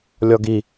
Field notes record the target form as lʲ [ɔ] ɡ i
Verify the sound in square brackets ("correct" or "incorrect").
correct